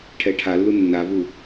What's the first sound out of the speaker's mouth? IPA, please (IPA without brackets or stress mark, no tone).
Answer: ʈʰ